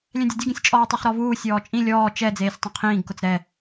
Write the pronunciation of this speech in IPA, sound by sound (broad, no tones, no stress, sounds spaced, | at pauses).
lʲ ɛ̃ dʲ ʊ dʲ u ɡ ĩ sʲ t͡ʃʼ ɔː tˤ ɛ χ ɾ ɔ v uː sʲ ɔː t͡ʃʼ ĩ lʲ ɔː t͡ʃ ɛ d͡z eː sʲ tˤ ĩ qʰ ĩː ɡ k ʊ t͡s ɾ ɛ